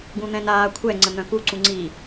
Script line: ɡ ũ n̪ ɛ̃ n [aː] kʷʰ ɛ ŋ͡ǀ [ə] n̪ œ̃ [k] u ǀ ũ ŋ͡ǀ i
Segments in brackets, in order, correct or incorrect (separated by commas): correct, correct, correct